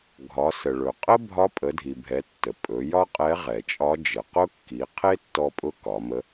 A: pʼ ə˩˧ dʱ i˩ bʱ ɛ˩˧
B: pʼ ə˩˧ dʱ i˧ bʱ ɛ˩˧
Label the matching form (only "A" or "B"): A